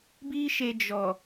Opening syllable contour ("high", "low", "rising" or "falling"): high